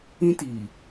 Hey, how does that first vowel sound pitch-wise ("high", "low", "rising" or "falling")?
high